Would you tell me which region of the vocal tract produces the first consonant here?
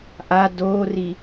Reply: throat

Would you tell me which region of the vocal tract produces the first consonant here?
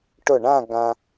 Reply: retroflex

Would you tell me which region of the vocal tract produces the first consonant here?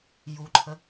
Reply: palate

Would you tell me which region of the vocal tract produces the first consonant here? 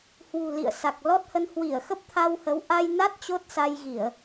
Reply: throat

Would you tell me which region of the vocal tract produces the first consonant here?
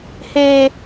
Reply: throat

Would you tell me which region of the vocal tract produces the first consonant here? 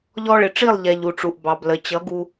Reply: palate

